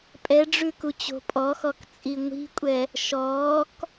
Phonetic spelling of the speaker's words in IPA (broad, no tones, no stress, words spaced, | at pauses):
pʼɛɖ͡ʐʉkut͡ɕo̤ pʼɔxɔk t͡sʼiŋʷi̤kʷʼɛ | ʃɔːk